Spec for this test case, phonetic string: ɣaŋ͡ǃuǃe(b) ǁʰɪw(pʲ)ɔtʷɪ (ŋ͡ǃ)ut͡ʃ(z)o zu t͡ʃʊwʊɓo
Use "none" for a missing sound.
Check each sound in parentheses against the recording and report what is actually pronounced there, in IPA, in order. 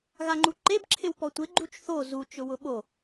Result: b, p, ɡ͡ǃ, θ

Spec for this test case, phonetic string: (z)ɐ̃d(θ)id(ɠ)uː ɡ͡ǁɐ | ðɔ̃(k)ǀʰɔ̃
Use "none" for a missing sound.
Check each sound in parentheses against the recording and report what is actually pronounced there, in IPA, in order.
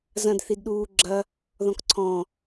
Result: z, θ, ɗ, k

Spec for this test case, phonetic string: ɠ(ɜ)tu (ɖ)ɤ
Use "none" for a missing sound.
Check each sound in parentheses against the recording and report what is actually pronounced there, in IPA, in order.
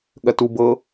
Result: ɜ, b

